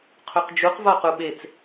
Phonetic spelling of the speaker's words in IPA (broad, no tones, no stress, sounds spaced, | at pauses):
qʰ u q d͡ʒ u q v ɒ q u ɓ e t͡s